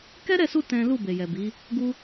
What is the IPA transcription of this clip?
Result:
k ɛ˦ ɾ ɛ˦˨ s u˧ t ɛ̃˦ l u˦˨ b e˨ j ɛ˨ b i˨˦ | ɡ u˦

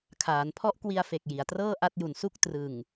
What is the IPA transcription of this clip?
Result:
kʰ aː˩˦ n pʰ ɔ˦˥ ʔ k w i˧ a̯ f e˨˩ k̚ j i˩˦ a̯ t r ɤː˥˩ ʔ a˦˥ t̚ j u˨˩ n s u˥˩ k̚ t r ɯ˨˩ ŋ

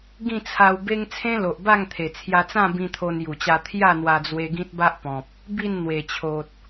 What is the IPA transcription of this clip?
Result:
ɡ ĩ˥˧ t͡sʰ a˧ w b e˦ ŋ t͡sʰ ẽ˦ l o˨ ʔ b a˥˧ ŋ t̪ʰ e˨˩ t͡sʰ j a˧ t͡s ã˥˧ b ĩ˧ t̪ʰ o˧ n j u˨˩ t͡ɕ a˧ t̪ʰ j a˥˧ n̪ w a˧ d͡z w e˧ ɡ ĩ˦ t̚ b a˦ ʔ p ɔ̃˨ p̚ | b i˥˧ n n̪ w e˨˩ t͡ɕʰ o˨ t̚

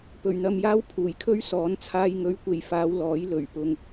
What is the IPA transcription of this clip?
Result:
p ɵ˨˩ ɥ n̪ ɐ˧ m j aː˥ w pʰ uː˨˩ j kʰ ɵ˥ ɥ s ɔː˨˥ n t͡sʰ aː˧ j ŋ ɵ˨˧ ɥ kʷ e˨ j f aː˧ w l ɔː˨˥ j l ɵ˨˩ ɥ p ʊ˧ ŋ

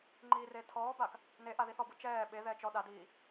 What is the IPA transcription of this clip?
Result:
ŋ͡ǃ iː r e tʰ ɔː b a k | n e ʔ a ð i θ ɔ b ɯ t͡ʃ ɛː ɓ e ð ɛː t͡ʃ ɔ ɗ a d iː

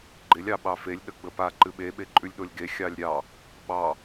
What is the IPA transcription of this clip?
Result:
ɡ͡ǃ ɪ lʲ ɑ ɓ ɑ f e lʲ ɗ ə ɡ͡b ə p a ǃ ɨ ɓ e ɓ e ǃʼ ʉ lʲ ɗ o lʲ ɡ e xʲ ɑ lʲ ɾʲ ɑ | ɓ ɑ

